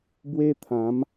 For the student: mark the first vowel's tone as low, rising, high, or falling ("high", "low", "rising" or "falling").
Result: high